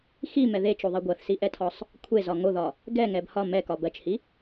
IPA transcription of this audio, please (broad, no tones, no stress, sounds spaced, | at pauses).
x i m ɛ ð e t͡ʃ o ðˤ i ɡʷ ɜ θ s i ʔ ɛ tʰ ɒ sˤ | kʷʰ e z ɒ ŋ o ð ɒ | ɡ ɛ ŋ ɛ b h ɒ m ɛ k ɒ b ɜ t͡ʃ h i